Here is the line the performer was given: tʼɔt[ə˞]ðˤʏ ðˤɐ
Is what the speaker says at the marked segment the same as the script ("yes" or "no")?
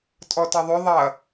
no